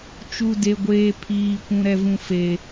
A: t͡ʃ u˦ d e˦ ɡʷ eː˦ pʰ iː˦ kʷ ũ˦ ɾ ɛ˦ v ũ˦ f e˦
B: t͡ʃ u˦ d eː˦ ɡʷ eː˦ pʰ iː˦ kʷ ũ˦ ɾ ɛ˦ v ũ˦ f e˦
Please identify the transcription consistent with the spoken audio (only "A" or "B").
A